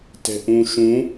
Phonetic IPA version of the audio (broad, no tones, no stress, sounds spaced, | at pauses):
t ɛ̤ ʔ ũ ʃ ũ